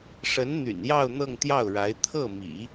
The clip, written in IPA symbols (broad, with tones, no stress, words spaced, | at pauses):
ʂə˧˥n n̪y̰˨˩njɑ˥˧ʊ̯ n̪ɤ˥˧ŋt̪jɑ˥˩ʊ̯ɻa˧˥ɪ̯ t̪ʰɤ˥˩mḭ˨˩˦